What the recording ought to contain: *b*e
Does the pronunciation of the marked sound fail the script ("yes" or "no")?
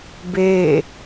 no